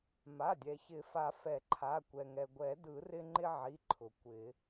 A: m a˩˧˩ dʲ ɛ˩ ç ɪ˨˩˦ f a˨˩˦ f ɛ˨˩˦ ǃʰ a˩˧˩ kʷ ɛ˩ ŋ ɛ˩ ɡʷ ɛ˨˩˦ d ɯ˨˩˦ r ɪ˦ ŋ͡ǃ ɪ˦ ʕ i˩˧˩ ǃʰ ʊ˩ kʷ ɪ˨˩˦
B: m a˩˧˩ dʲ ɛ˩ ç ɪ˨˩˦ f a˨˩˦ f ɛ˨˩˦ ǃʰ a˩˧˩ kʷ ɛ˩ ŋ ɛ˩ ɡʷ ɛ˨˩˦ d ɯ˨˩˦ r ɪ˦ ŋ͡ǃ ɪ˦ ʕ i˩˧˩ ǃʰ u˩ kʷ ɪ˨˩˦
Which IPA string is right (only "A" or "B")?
A